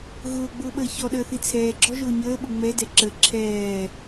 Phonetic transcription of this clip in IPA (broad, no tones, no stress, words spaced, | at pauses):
ɣʊːɡ͡bʊːɓəː çɔɗəːθi t͡sʰɛːɡ͡ǁɔʒʊː ɲəːɓʊ ŋ͡mɛdɛ ǁə ǁʰɛː